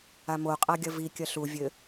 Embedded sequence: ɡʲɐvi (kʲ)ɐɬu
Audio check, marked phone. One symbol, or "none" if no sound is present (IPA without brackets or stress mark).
kʲ